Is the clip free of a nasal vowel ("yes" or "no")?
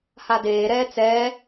yes